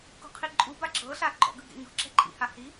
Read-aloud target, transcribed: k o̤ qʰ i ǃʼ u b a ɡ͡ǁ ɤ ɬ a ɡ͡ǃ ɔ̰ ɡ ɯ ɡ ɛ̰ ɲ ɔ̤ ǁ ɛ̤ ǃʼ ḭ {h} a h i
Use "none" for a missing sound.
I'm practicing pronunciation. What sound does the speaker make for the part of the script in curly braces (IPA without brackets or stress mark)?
h